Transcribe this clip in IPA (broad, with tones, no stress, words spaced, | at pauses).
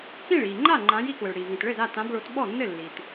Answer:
kĩ˥˩ɭiː˩ ŋ͡ǃa˥˩ŋ͡ǃã˨˦j i˨˦kwɘ˩ɭɽiː˩ vĩ˩tɭɘ˥˩za˥˩ tã˨˦bɭo˨˦t ɓɔ˥˩nːɘ˥˩lːi˩t